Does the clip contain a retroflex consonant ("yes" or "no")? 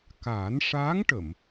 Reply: yes